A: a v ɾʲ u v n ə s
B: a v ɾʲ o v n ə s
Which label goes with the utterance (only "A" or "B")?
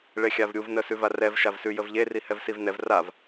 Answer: A